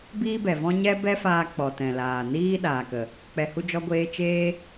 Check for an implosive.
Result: present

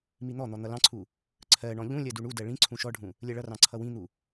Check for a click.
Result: present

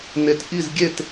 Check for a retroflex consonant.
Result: absent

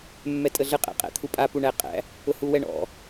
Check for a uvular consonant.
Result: present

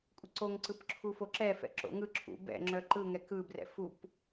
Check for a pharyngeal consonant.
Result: absent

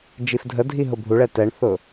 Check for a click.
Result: absent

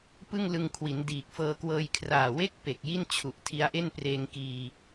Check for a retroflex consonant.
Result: absent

